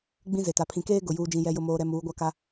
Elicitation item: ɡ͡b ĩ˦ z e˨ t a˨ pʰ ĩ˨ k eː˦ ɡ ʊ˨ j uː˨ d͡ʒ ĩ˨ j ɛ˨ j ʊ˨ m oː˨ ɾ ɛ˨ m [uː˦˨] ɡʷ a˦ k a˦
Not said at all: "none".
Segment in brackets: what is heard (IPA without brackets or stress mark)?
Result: uː˨˦